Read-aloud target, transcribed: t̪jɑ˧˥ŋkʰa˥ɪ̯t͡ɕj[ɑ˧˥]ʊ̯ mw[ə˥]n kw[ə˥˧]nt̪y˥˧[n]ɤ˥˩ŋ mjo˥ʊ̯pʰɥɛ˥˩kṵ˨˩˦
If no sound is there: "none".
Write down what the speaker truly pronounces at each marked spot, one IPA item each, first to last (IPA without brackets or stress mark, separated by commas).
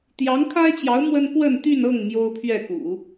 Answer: ɑ˧˥, ə˥, ə˥˧, n